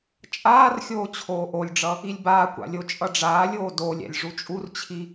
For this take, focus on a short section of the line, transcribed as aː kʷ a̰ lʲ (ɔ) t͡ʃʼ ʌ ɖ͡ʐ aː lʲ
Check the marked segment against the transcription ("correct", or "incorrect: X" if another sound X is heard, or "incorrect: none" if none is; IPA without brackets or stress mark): incorrect: o